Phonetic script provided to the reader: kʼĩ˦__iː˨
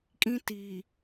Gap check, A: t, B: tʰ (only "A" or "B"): A